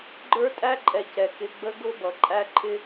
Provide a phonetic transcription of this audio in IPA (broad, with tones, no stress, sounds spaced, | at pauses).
ɡ͡ǃ ə˞˦ tʼ æ˦ ǃʼ ɛ˨ c ɛ˨ k ɪ˧ ɡ͡b ə˧ ɡ ʊ˦ b ʌ˨ ǃʼ æ˧ ǃʰ ɪ˧